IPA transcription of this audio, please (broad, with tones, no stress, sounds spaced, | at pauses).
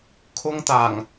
kʰ ʊ˥ ŋ t̪ aː˨˩ ŋ